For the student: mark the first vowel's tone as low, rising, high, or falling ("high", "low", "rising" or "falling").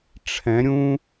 rising